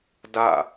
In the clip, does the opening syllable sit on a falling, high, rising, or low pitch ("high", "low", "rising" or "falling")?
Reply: falling